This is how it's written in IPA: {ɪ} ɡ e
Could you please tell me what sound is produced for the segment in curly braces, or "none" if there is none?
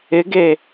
ɪ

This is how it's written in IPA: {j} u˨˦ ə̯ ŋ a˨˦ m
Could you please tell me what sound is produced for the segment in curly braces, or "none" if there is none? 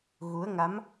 ɣ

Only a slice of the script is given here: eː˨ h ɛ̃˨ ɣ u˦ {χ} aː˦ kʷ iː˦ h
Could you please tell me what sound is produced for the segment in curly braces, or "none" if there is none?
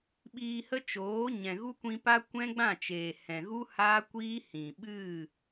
h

